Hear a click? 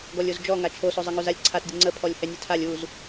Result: yes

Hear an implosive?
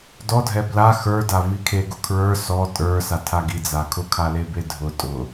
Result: no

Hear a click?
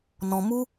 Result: no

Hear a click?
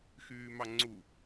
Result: yes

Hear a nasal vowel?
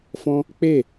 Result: yes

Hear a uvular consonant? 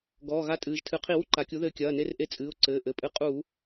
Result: yes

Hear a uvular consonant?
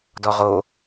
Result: yes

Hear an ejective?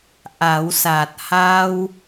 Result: no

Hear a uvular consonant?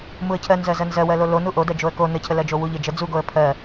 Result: no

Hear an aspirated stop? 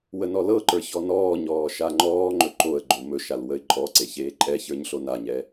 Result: no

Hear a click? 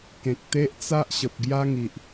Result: no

